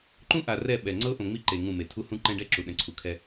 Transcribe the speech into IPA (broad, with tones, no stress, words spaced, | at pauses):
ǃũ˦ʔa˨ rɛ˦˨ɓɛ˨ ŋ͡ǀɤ˦ʔõ˨ŋ͡mi˦ ǃe˨ ŋũ˦˨me˨ tʰu˦hũ˦ǃɛ̃˦ɖɛ˦ ǁu˨ɗɛ̃˨ǀʰu˨kʰɛ˦